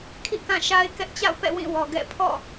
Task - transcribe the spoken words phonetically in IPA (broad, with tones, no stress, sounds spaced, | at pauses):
kʰ ḭ˦˨ k ã˦˨ ʃ a˦ ɪ̯ k ɛ˦ ʔ t͡ɕ a̰˦˨ ʊ̯ p ɛ̰˦˨ w ĩ˦˨ w ɔ˨ ɡ ɛ̰˦˨ pʰ ɔ̰˦˨